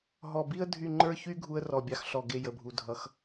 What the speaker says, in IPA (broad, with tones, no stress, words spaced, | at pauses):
ɦɔ˨˩bi˦ə̯ dʱy˦˨ ŋ͡ǃə˞˦çy˦ ɡʱu˦ə̯ rɔ˨˩bʲɑ˨˥xɬɔ˨˩ ɡe˦˨ jə˨˩bʱu˩˧ dʱʌ˨˥x